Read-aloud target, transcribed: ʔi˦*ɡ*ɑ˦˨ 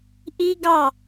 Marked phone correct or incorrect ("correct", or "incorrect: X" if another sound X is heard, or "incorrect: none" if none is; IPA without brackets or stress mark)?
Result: correct